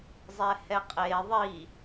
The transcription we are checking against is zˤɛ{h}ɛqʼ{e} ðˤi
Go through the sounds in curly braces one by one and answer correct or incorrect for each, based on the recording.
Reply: correct, correct

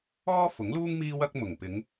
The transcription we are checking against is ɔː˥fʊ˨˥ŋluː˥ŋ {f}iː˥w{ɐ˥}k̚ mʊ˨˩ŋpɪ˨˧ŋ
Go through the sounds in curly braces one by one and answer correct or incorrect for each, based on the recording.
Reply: incorrect: m, correct

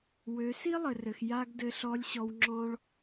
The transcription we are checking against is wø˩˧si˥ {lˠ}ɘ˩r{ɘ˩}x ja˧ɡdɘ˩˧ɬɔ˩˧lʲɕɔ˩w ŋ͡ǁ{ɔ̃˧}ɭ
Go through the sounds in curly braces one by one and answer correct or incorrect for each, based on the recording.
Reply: correct, correct, correct

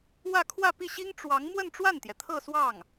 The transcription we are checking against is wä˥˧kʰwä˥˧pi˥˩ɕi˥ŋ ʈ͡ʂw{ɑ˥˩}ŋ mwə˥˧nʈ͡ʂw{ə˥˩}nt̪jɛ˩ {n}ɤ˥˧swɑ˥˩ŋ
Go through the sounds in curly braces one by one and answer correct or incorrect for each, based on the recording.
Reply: incorrect: ɑ˧˥, incorrect: a˥˩, incorrect: t̪ʰ

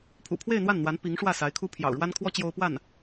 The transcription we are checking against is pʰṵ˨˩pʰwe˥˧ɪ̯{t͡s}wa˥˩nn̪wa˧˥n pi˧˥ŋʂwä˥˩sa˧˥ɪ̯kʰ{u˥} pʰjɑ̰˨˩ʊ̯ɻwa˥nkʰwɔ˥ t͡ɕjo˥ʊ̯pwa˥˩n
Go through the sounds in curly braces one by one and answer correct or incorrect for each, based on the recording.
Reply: incorrect: n̪, correct

